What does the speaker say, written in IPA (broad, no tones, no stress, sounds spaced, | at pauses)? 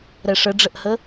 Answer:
ɾ ɛ ʂ ə ɖ͡ʐ ə ʔ h ə